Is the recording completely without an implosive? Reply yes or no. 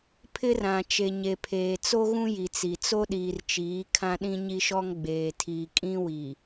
no